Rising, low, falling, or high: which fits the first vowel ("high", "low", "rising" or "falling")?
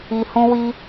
low